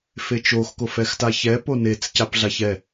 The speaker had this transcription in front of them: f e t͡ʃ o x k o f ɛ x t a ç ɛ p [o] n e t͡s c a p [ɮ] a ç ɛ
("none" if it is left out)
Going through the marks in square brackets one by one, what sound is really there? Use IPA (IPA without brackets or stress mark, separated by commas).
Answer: o, ɮ